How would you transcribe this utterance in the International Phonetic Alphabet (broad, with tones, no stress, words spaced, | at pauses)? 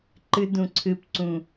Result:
ǃɨ˧dũ˨ ǀʰɨ˨pǀũ˨